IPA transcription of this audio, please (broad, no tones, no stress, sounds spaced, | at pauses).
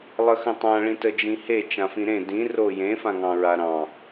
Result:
lˠ ə x ə̃ tˤ ã ɭ ĩ t ə d͡ʒ ĩ h e t͡ʃ ã f ĩ ɾ ẽ d ĩ r o j ẽ f ã ŋ ɑ̃ ɹ a ɾ ɑ̃